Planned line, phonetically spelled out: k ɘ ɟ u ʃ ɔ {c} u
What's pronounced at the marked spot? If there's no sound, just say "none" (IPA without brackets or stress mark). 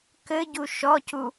c